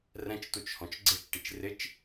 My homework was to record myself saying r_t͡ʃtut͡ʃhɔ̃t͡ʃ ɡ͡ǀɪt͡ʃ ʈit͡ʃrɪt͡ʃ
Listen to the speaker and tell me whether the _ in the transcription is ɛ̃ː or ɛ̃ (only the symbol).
ɛ̃